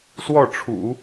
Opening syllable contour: falling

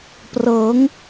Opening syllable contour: rising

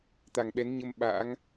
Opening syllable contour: low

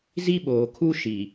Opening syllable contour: high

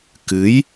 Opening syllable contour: rising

